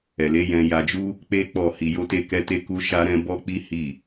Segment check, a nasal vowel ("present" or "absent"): present